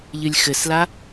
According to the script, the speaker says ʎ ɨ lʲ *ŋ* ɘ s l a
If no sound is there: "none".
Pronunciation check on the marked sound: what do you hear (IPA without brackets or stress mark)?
x